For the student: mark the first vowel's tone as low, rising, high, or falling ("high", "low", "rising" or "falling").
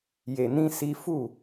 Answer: low